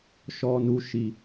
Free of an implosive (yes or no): yes